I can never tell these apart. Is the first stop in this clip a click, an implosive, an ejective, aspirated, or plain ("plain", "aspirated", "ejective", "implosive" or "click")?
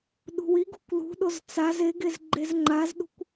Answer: implosive